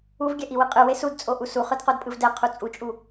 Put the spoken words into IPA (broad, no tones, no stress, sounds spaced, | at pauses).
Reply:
u v ɡʲ ɛ ʔ i w ɯ qʼ ɯ w e s u d t͡sʼ o ʔ u s u χ ɯ d q o d pʼ ɯ v d ɛ qʰ u t͡sʼ u t͡ʃʼ u